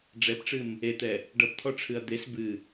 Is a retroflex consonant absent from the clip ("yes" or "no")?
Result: no